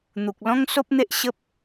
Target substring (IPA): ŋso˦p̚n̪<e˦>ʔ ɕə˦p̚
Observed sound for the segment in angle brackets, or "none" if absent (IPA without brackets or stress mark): e˦